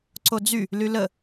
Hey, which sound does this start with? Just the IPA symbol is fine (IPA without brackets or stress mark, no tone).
ǀ